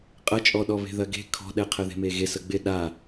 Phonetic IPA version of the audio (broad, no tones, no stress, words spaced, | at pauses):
qʼɐt͡ʃʼɔɗɔβe̤ ðɐɡe̤ kʰɔ̤ɗɛ qʰəðe̤meɣe səɡ͡bɪ ɗa